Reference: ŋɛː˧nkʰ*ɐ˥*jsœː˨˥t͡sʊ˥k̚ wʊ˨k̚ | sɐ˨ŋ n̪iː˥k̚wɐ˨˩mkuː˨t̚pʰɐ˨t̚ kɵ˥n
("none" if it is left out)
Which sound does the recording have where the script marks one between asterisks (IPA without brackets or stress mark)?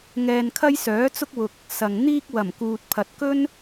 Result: ɐ˥